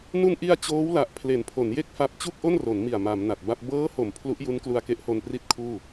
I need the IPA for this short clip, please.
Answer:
nu˧nʔi˧a̯ t͡ɕoː˦˥wla˨˩ʔ pʰle˩˦npʰo˩˦nje˥˩k̚fa˦˥p̚ t͡ɕu˥˩k̚ʔo˥˩nro˩˦nmi˨˩a̯ ma˩˦mna˨˩t̚ba˥˩p̚ bɤː˦˥ho˩˦m pʰlu˦˥ʔju˦˥n klu˧a̯ke˦˥ʔho˧n pri˥˩t̚kʰuː˥˩

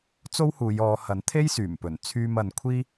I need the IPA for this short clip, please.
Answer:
t͡so˥whuː˨˧j ɔː˨˧hɐ˨˥nt̪ʰe˥j syː˨˩mpɵ˨˩n t͡sʰyː˧mɐ˨nkʷʰiː˥

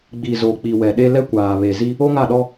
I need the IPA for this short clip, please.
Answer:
ɡ͡bi˨zo˨ k͡pi˨wɛ˨ɗe˦ lɛ˦kʷaː˨βe˨zi˦ | o˦ŋa˦˨ɗɔ˦

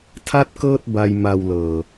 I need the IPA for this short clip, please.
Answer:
tʰa˥˩t̚kɤː˥˩t̚ ba˧jma˨˩w lɤː˨˩

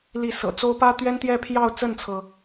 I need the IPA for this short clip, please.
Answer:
li˥˩ sɤ̰˨˩t͡so˥ʊ̯ pä˥t̪ɥɛ˥n t̪jɛ˥˧pʰjɑ˥˧ʊ̯ t͡sə˥˩nt͡sʰɤ˩

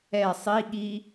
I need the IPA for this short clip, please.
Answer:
ɛ sˤiɠi

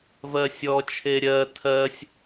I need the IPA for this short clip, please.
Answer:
vɜsʲɔ t͡ʃʰeɾʲɜ tʰɜsʲ

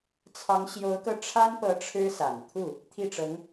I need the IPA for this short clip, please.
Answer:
t͡sʰɑ˧˥ŋɕjo˧˥ʊ̯kɤ˧ ʈ͡ʂʰa˥npɤ˧˥ ʈ͡ʂʰɻ̩˥sa˨˩nt̪ʰu˥˩ | t̪ʰi˥˩ʈ͡ʂɤ˧˥ŋ

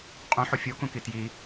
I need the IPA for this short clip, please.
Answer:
qʼõħo fʲokũki tji

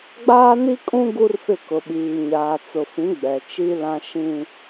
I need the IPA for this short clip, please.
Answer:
ɡ͡baː˦ni˦kʼũ˦ ɡu˦rfɪ˦˨ kʊ˨ɓiː˨ ɲaː˨t͡sʊ˨fĩ˨˦ ɡ͡bɛ˨t͡ʃi˦lã˦ ʃĩ˦

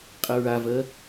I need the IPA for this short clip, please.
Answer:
qʼəɹavɜ

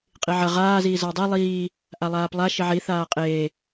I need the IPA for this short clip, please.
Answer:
qʼiʕɐ ʁaː ziːzɐwdˤe lˠiː | ʔalˠaːplˠa ʃiʕi θaːqʼeː

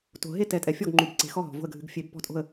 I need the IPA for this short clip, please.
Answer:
to̤˨ ɦe˥˨ tɛ˨˦tʼɛ˨ fʲɔ˥˨ɡŋ͡ǃu˨b ǀe̤˨˦xɔ˥˨ɦɔ̤˨ vo̤˥˨ə̯ɡʱɨ˨˦ɡ fʲe˨˦b pɔ̤˥˨tʼo̤˥˨ə̯

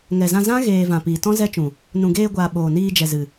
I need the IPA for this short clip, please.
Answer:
ŋɛ˨zã˧zã˦ ɣeː˨ vã˨piː˨tɔ̃˦ zɛ˦t͡ʃũ˨ | nũ˨ɡeː˧ɡʷaː˨ ɓoː˨niː˧ d͡ʒɛ˨zɨ˨

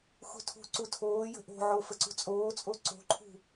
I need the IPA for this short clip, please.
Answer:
xṳtʰṳǀu tʰoːjə̤ ʔo̤ʕo fəǀṳt͡sʼoːt͡sʼo ǀo̤ǃʰṳ

